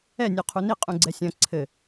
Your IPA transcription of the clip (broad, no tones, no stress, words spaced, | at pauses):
ɛ nʲoqʰuni qʼũɡ͡ǀɛsʲɐ̃ ǀʰɘ